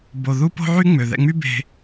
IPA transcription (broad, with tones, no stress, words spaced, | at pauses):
bo˧ ðu˦po̤˦ʕy˦ ŋ͡mø˨ðɛ̰˧ŋ͡my˦ be̤˧